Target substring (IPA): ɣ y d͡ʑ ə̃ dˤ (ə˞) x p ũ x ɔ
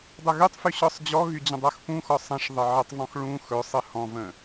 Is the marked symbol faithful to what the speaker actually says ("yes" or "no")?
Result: yes